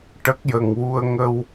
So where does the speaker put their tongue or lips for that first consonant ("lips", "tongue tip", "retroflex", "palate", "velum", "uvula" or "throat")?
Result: retroflex